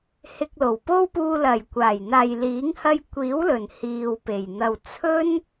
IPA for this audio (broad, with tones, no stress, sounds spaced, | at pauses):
h ɪ˧ k̚ l o˨˩ w p o˥ w p uː˧ l ɐ˨˩ j kʷ aː˨˩ j n̪ aː˨ j l iː˨˥ ŋ h ɐ˧ j kʷ iː˨˥ w l ɵ˨˩ n h iː˨ w p e˨˩ j n̪ ɐ˨ w t͡sʰ ɵ˥ n